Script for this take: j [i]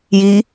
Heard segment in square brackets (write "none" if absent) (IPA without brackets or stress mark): i